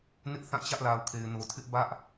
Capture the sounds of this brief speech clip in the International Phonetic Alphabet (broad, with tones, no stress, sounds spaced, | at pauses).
n ɪ˦ ʔ θ ã˦˨ t͡ɕ ä˦ ʔ l a˨ ʊ̯ kʰ e˨ ɪ̯ n o˨ tʰ ɪ˦ ʔ b ä˦ ʔ